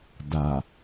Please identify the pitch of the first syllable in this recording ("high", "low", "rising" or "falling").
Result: low